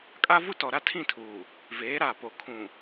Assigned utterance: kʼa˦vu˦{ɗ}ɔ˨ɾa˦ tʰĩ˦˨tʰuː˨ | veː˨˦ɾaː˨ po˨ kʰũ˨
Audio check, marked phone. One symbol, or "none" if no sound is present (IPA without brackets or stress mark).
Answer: t